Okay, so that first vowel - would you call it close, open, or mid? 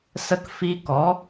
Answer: mid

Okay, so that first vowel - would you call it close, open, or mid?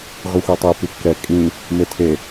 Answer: close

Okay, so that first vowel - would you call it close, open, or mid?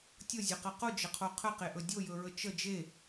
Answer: mid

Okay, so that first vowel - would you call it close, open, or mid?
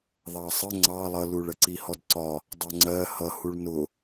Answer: open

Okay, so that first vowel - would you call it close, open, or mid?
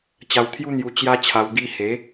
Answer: open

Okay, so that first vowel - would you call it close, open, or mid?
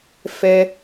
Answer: mid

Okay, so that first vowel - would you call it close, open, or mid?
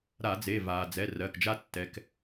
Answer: open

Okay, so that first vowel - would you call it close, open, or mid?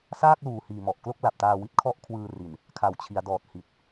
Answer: open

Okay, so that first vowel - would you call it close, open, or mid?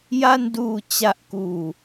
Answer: open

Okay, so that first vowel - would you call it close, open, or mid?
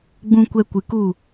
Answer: close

